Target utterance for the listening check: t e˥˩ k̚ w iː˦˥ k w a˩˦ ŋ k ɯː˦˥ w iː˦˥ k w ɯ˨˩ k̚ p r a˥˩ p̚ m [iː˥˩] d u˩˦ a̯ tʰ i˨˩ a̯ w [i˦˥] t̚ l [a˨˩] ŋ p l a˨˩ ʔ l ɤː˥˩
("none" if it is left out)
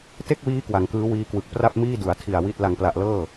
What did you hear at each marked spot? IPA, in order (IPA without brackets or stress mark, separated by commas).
iː˥˩, i˥˩, a˨˩